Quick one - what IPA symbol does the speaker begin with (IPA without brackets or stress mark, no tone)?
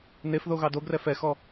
n